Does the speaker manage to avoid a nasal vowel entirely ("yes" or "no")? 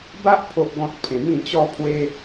no